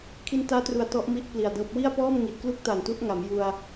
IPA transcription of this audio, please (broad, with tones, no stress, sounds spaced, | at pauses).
kʰ i˧ n t aː˦˥ t r u˨˩ a̯ t ɔ˦˥ ʔ m i˦˥ ʔ p l i˨˩ a̯ d ɤː˦˥ p̚ w i˥˩ a̯ p ɔː˥˩ m ŋ i˨˩ t̚ k l u˥˩ k̚ t a˨˩ n t u˦˥ ʔ ŋ a˩˦ m j u˧ a̯